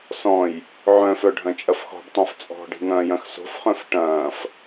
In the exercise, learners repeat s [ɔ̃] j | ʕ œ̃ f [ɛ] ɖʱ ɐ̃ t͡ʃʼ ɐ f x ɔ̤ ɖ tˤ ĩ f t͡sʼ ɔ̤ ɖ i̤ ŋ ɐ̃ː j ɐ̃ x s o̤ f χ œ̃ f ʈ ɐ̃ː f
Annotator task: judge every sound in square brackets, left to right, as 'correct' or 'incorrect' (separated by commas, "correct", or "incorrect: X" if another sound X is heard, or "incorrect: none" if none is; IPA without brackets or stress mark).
correct, incorrect: œ